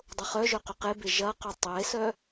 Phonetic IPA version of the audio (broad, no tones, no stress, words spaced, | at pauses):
dˤʊχœʒœ qʏqebe ʒɐqʏ tˤesœ